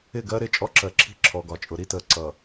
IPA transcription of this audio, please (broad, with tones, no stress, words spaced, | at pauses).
ɪ˦˨ɡɜ˦ɾɪ˦˨ t͡ʃʼɔ˦ǁɜ˨ ǁʰi̤˦ ǁʰɔ˨ɡɒ˨t͡ʃʼʊ˨ ɾi˦təː˨ ǀʌ˨